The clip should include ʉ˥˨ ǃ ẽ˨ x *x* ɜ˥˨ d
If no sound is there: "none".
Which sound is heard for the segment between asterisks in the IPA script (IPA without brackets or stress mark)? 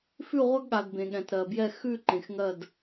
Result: ŋ